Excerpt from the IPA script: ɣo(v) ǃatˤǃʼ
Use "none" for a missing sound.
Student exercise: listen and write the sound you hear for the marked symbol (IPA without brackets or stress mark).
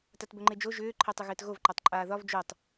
v